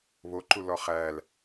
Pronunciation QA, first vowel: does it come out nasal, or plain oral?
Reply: oral